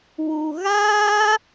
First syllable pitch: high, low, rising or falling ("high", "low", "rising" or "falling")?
low